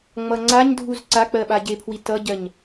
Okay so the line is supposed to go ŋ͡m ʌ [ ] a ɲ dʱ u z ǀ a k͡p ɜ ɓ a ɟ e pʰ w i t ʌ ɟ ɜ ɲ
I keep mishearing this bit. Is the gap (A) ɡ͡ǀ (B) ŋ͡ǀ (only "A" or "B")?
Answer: B